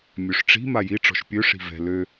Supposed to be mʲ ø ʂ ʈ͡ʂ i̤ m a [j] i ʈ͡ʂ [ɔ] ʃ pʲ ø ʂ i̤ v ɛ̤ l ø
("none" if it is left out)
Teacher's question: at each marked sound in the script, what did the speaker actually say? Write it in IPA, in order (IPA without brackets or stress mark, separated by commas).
j, ɔ̤